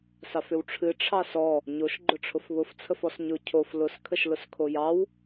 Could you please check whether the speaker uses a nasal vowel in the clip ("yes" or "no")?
no